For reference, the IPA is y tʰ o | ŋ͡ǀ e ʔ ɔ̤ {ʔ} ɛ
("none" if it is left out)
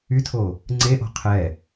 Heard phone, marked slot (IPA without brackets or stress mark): qʰ